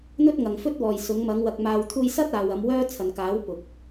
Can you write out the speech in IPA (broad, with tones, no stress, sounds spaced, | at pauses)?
n̪ ɵ˥ t̚ ŋ ɐ˨ ŋ f ɵ˥ t̚ w ɔː˨ j s ʊ˨˧ ŋ m ɐ˨˧ ŋ w ɐ˨ k̚ m aː˨ w t̪ʰ uː˧ j s ɐ˥ t̚ aː˨ w ɐ˨˧ m w œː˥ t͡sʰ ɐ˨ n k aː˨˥ w p ʊ˨ k̚